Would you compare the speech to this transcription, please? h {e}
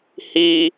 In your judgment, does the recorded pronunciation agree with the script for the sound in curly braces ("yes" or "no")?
no